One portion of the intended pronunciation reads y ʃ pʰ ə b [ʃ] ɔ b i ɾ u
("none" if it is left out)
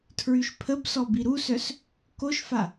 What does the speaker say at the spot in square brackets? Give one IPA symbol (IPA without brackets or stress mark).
s